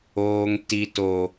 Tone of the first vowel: high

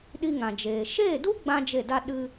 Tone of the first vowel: high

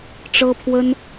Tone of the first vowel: high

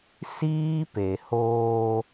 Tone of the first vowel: high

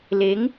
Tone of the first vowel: rising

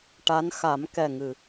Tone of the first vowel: rising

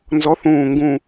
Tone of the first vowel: rising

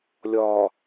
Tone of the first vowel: low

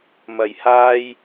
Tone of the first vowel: low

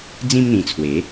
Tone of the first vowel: high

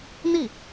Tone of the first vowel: falling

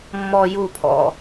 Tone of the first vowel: low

